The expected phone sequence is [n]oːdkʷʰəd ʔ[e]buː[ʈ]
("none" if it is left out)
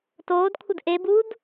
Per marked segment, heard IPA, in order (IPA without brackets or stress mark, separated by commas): t, e, d